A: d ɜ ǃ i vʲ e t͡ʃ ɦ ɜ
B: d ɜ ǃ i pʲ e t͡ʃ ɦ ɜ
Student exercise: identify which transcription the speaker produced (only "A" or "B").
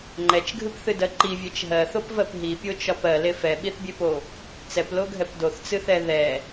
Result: A